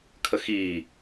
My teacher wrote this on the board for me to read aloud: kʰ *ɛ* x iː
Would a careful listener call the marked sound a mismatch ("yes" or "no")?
yes